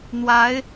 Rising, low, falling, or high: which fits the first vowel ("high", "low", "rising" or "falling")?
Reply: rising